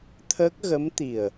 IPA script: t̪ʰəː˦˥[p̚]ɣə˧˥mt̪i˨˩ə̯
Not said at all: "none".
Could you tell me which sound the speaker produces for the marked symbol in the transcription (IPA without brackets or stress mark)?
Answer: k̚